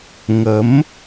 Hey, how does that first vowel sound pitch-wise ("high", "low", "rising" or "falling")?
rising